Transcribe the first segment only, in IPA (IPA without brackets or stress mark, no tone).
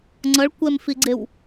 ŋ͡ǀ